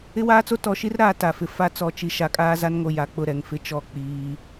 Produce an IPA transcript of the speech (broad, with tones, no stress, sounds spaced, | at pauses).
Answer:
ɪ˦ w aː˦ t͡s o˦ t ɔ˨ ʃ i˦ r ɾ aː˨ t a˨ f ɪ˨ f a˦ t͡s ɔ˨ t͡ʃ i˨ ʃ a˨ kʼ aː˦ z a˦ n ŋ o˨ j a˨ k͡p ʊ˦˨ ɾ ɛ˨ ŋ f ɪ˦ t͡ʃ ɔ˦˨ k͡p iː˦